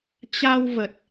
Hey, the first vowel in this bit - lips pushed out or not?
no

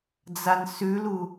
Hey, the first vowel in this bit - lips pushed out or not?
no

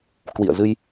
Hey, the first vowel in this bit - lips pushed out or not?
no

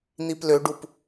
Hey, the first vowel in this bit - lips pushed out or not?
no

